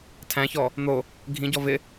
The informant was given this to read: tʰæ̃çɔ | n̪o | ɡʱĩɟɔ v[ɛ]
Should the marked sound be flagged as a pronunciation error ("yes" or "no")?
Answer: yes